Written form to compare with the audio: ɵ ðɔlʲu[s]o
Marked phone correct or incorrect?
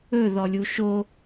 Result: incorrect